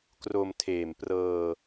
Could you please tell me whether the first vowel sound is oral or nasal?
oral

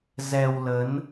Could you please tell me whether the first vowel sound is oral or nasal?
oral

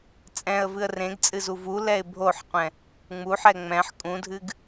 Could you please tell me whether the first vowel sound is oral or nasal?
nasal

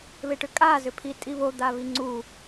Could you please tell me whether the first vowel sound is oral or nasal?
oral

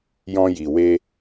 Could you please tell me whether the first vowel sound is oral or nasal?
nasal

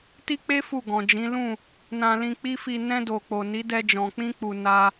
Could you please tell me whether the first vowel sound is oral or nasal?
oral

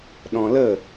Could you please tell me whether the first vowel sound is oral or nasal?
nasal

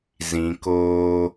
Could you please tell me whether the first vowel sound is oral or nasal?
nasal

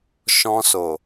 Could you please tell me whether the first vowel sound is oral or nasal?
nasal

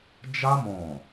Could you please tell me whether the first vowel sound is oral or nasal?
oral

